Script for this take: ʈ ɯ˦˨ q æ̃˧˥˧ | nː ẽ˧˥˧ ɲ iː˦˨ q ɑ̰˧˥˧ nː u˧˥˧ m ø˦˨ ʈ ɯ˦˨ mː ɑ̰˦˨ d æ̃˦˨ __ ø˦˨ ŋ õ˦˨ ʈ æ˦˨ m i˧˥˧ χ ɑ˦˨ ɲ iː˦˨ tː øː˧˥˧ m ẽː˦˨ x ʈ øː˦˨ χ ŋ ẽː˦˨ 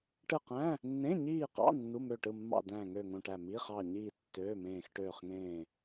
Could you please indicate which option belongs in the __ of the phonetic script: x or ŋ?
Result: ŋ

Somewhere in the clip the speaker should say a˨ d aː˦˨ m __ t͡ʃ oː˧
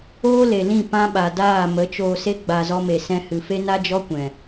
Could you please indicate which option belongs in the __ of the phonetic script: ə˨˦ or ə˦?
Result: ə˨˦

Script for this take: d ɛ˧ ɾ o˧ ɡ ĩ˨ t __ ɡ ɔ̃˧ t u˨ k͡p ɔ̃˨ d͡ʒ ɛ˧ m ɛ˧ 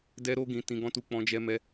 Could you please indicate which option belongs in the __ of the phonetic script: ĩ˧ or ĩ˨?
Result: ĩ˨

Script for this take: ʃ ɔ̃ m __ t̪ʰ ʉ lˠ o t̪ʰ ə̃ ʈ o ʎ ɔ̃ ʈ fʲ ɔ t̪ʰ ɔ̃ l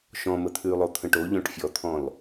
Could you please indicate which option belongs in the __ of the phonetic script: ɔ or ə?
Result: ə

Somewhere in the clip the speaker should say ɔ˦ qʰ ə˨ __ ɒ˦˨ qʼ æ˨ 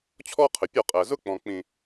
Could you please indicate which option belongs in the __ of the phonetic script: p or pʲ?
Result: pʲ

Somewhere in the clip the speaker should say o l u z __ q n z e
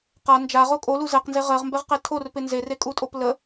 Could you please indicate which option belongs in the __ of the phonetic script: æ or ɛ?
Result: ɛ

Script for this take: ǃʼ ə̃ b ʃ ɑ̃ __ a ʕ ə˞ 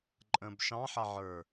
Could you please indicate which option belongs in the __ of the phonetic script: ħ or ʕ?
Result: ħ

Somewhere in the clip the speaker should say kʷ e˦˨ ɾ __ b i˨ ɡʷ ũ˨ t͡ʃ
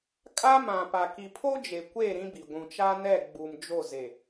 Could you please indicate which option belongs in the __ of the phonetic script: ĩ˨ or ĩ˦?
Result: ĩ˦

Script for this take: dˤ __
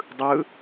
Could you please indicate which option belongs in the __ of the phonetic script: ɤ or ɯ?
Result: ɯ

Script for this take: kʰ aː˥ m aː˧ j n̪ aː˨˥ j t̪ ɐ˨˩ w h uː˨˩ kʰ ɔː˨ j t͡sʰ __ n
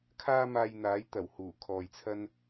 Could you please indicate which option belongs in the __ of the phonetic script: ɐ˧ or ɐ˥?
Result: ɐ˥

